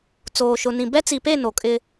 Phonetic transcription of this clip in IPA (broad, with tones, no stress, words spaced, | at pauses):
t͡soː˨ʃʊ˨nĩ˨ bɛ˦t͡si˨pe˦˨ no˨kʼɪ˦